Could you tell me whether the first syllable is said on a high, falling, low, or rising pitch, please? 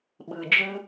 low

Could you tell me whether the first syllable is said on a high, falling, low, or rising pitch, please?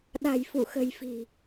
low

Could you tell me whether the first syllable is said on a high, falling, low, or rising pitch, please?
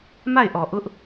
falling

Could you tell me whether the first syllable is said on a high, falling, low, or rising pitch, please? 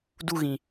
high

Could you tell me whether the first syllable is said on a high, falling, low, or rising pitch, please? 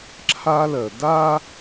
high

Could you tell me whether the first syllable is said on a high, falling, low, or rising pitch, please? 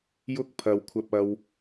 high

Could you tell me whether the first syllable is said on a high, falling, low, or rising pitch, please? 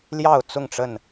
falling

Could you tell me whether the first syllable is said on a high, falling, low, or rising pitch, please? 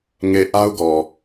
low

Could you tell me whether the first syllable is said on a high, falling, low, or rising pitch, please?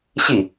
falling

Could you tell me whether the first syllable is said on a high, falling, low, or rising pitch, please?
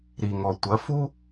low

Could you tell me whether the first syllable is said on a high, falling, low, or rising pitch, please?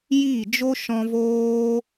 falling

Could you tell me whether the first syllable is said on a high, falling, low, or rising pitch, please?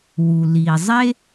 low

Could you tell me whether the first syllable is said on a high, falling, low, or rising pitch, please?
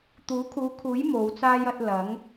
rising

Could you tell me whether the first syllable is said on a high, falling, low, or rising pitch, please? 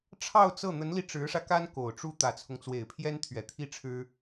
falling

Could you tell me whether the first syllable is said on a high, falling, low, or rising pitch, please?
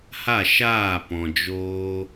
falling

